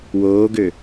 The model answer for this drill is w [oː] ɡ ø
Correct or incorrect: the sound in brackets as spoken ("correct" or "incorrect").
correct